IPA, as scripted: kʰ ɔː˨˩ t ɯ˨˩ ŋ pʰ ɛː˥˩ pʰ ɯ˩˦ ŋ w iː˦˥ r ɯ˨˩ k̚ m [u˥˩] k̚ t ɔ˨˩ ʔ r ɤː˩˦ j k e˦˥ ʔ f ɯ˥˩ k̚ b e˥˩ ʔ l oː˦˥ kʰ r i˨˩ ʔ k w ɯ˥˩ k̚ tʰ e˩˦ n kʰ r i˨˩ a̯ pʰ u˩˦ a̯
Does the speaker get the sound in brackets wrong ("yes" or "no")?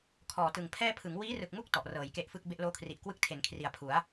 no